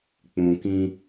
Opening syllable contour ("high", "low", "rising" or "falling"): low